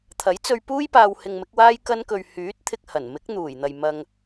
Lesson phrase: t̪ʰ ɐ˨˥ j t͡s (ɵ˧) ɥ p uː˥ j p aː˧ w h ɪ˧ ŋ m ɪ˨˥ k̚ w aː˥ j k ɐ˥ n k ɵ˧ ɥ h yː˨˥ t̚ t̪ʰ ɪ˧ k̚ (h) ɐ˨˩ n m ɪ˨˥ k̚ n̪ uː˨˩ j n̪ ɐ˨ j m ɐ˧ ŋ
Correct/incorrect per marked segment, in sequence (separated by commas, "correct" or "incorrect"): correct, correct